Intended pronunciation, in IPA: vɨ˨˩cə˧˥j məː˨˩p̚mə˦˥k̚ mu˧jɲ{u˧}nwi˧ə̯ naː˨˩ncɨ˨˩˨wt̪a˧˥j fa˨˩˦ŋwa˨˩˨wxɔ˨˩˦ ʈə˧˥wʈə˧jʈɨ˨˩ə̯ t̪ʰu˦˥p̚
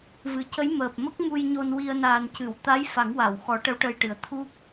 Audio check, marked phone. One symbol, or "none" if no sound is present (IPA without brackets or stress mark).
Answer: o˧